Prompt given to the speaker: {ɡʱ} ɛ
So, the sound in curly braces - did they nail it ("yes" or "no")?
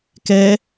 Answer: no